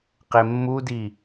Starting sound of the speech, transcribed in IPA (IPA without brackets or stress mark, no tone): q